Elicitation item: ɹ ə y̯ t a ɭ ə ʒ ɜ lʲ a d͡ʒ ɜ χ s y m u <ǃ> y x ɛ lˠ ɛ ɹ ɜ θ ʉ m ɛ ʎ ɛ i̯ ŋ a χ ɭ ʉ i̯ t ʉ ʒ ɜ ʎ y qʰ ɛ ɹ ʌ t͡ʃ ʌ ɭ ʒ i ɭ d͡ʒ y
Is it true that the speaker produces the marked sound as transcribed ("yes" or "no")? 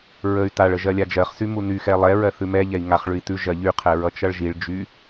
no